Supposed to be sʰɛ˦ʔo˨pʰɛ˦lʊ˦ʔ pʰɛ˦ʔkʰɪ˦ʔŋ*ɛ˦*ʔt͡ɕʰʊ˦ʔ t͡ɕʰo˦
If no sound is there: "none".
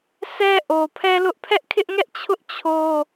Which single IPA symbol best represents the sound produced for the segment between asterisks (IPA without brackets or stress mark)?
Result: ɛ˦